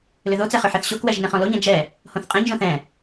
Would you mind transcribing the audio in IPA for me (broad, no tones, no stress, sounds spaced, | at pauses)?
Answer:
l ʏ ð o t͡s ɛ χ ʏ ħ ɛ θ ɕ o k w ɛ ʒ n ɛ̃ χ ɔ̃ l o ɲ ɛ̃ d͡ʒ ɛ | h õ θ qʼ ɛ̃ ɲ ʒ õ θ ɛ̃